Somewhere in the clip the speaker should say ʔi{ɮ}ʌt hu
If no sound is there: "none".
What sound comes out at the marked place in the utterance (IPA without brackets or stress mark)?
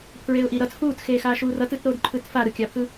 ɾ